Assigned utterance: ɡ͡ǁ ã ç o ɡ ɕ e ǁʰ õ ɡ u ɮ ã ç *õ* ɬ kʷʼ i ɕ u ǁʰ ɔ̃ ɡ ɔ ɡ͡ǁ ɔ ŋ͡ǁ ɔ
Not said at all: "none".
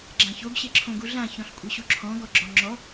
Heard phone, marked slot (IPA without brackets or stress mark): ɔ̃